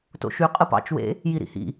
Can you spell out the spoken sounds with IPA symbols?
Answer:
t o̰ ʃ y qʼ ɯ p ɑ̰ t͡ʃ w ḛ | j i ɾ ḭ h ḭ

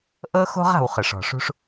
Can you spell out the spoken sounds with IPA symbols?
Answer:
ʔ ɤ˥ x o̤˥ ʁ a̤˨ w χ ɯ˩ ʂ ɔ̤˩ ʂ ṳ˦ ʂ

